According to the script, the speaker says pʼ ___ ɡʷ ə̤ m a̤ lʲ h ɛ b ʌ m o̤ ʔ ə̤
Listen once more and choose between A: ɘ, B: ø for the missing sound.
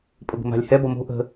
A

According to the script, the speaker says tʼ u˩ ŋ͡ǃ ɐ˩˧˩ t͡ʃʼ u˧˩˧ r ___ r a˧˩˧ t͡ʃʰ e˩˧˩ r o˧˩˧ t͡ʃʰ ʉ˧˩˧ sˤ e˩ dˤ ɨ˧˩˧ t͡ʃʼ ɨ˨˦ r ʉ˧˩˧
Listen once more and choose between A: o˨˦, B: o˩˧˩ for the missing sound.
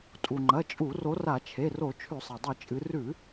A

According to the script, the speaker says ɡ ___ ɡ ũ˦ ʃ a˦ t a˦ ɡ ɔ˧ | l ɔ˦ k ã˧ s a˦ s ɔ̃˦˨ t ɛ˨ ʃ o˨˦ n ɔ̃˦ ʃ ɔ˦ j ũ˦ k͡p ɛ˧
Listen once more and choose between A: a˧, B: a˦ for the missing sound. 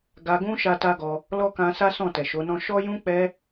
A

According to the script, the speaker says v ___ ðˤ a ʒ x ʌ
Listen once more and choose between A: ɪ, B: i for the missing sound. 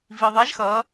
B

